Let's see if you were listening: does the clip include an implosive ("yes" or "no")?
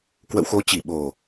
yes